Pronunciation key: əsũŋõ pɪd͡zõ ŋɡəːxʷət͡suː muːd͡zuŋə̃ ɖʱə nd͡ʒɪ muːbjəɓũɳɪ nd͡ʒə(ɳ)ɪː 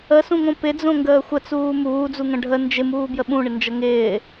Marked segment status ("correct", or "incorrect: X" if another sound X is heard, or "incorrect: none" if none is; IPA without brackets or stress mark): incorrect: ŋ